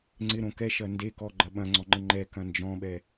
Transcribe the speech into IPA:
ŋ͡ǀ ɪ ɾ õ k ɛ ʃ ɐ n d e k ɔ ɡ͡ǃ ɐ ɓ ɐ̃ ŋ͡ǀ ɔ ŋ͡ǃ ə ŋ͡ǃ ɛ k ɐ̃ n d͡ʒ ɔ̃ ɓ ɛ

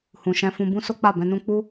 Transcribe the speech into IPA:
h ũ˨ ʃ ɛ̃˧ f ũ˧ b ũ˦ s o˦ k͡p a˦˨ b ɛ̃˧ n ũ˦ k͡p u˦

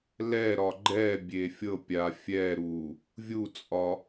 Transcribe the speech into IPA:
l ɛ ɾ ɒ ɡ͡ǃ ɛ bʲ e fʲ ɤ pʲ a fʲ ɛ ɾ u | vʲ u t͡sʼ ɒ

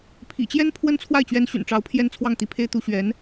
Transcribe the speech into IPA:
pʰ ḭ˨˩ t͡ɕ j ɛ˥ n pʰ w ə˥ n t͡sʰ w a˥˩ ɪ̯ t͡ɕ ɥ ɛ˧˥ n ɕ y̰˨˩ n ʈ͡ʂ ɑ˧˥ ʊ̯ pʰ j ɛ˥ n t͡sʰ w ɑ˥˩ ŋ t̪ i˧˥ pʰ e˥ ɪ̯ t̪ u˧˥ ɕ ɥ ɛ˧˥ n

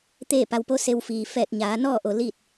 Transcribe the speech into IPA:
t̪ eː˥˨ p a˧ w p o˧˥ s e˧ w f iː˩ f ɛː˧˩ t̚ ɲ aː˩˧ n ɔː˥˨ ʔ o˩ l iː˥˨ t̚

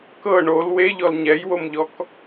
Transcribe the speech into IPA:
k ɤ ɳ o l w e ʎ ɔ l ɲ ɛ j w o m ʎ ɔ k

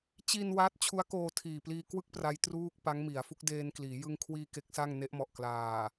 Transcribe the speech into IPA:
t͡ɕ i˧ n w a˦˥ t̚ t͡ɕʰ u˦˥ a̯ k oː˧ tʰ iː˨˩ p l iː˧ k w ɯ˥˩ k̚ p r a˦˥ j t r uː˥˩ k̚ p a˦˥ ŋ m i˩˦ a̯ f u˦˥ k̚ d eː˧ n k l iː˩˦ j ɯ˧ ŋ kʰ w iː˧ k e˦˥ k̚ s a˥˩ ŋ n e˦˥ ʔ m ɔ˨˩ ʔ k l aː˨˩

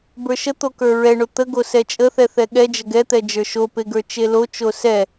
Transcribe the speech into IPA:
b ə˞ ʃ ə t̪ o k ə˞ ɹ ɛ ɳ o t̪ ə ɡ o s ɛ t͡ʃʼ ə θ ɛ θ ɛ ɠ ɛ d͡ʒ ə ɡ ɛ t̪ ɛ d͡ʒ ə˞ ʃ o p e ɡ ə˞ t͡ʃ e l o t͡ʃ o s ɛ

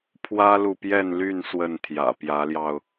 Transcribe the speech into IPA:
pʰ w ä˦ l u˨ p j ɛ˥˨ n l y˥˨ n s w ə˥˨ n t̪ʰ j ä̰˨˩ p j ä˨˦ l j ɑ˧ ʊ̯

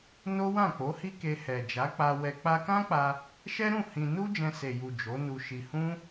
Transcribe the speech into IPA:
n o˦ w ã˦˨ k͡p o˨˦ h i˦ k e˧ h ɛ˨ d͡ʒ a˨˦ k͡p a˧ w ɛ˨ k͡p a˧ k ã˦ k͡p a˧ | ʃ ɛ˦ ɾ ũ˦˨ h ĩ˧ n u˦ d͡ʒ ɛ̃˧ s e˨ j u˨ d͡ʒ o˨˦ n u˧ ʃ i˧ h ũ˦

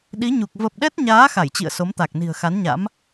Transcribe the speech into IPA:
ɗ i˨˦ ɲ u˨˩ k̚ v ə˨˩ p̚ ɗ ɛ˦˥ t̚ ɲ aː˨˦ x a˧˩ j t͡ɕ ḭ˧˨ ə̯ s o˨˦ m t̪ a˨˩ k̚ n i̤˨˩ ə̯ x a˨˦ n ɲ a̰˧˥ m

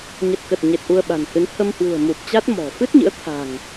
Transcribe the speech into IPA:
ɲ ə˨˩ t̚ k ə˨˩ t̚ ɲ e˨˩ t̚ ʔ u˧ ə̯ ɓ a̤˨˩ n h ɨ˨˦ n h ə˧ m h w ṳ˨˩ ə̯ m u˨˩ p̚ t͡ɕ a˦˥ t̚ m ɔ̤˨˩ f ɨ˦˥ t̚ ɲ ɨ̰˧˥ ə̯ t̪ʰ a̤˨˩ ŋ

